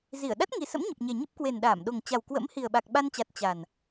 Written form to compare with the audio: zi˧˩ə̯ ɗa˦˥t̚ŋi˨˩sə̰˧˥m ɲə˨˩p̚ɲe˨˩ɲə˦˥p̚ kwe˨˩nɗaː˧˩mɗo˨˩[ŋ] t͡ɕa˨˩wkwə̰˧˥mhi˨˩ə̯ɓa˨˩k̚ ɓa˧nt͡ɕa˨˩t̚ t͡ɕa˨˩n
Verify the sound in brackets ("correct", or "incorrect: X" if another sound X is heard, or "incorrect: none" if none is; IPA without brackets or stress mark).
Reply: correct